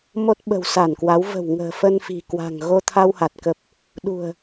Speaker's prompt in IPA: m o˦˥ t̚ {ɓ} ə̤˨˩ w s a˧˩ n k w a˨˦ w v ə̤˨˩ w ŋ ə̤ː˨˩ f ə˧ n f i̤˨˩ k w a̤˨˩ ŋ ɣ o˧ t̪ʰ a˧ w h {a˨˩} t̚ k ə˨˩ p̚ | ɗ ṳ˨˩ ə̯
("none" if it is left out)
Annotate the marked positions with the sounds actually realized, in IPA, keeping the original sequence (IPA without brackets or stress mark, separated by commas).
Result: ɓ, a˨˩